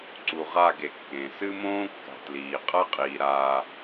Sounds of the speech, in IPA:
ǀ u˨ ʁ a˦˨ ɡ e˨ kː ẽ˨ s ɨ˦ m õː˦ kː a̤˨ t l iː˨ qʼ ɐ˦ qʼ iː˨ ɾ aː˨

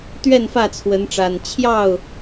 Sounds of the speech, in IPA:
t̪ ɥ ɛ˥˨ n f ä˥˨ t͡sʰ w ə˨˦ n ʈ͡ʂ a˨˩ n t͡ɕʰ j ɑ˥˨ ʊ̯

